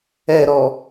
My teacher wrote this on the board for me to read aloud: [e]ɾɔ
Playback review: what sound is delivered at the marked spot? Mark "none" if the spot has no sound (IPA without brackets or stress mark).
ɛ